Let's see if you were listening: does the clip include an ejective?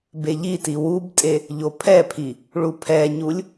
yes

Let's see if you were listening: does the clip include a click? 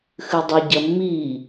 no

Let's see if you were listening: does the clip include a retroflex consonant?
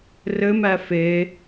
no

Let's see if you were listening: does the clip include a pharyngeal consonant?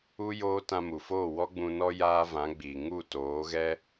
no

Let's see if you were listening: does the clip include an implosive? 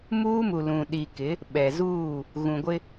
yes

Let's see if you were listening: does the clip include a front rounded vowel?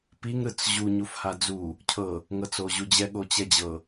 no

